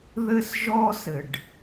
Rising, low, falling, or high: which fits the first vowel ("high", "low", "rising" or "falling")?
high